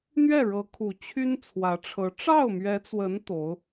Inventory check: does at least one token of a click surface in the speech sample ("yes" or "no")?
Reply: no